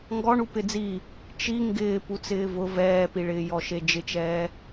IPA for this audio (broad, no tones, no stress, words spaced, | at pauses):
ŋɡɔɳu pɪd͡zi | t͡ʃi ŋɡɪː put͡sɪːvʊ vɛːpiɭɪː jɔʃed͡ʒɪt͡ʃɛː